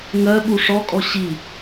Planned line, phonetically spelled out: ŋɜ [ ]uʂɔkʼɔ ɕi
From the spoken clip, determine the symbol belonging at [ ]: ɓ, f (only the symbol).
ɓ